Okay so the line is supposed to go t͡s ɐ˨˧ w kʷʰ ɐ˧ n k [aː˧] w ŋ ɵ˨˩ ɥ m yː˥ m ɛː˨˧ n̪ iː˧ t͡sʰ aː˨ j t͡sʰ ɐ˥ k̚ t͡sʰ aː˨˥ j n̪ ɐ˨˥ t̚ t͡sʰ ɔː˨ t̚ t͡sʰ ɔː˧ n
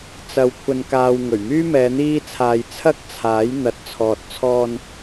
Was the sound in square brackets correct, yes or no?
yes